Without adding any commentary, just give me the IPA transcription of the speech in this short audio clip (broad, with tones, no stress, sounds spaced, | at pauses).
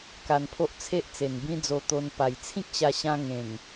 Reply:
k a˧ n pʰ o˦ ʔ t͡sʰ e˦ ʔ t͡s e˨˩ n b ĩ˦ d͡z o˧ t̪ o˧ n p a˨˩ j t͡sʰ ĩ˦ k̚ ɕ a˧ ɕ ã˧ ŋ ẽ˨˩ ŋ